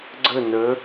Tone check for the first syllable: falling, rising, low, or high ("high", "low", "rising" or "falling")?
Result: falling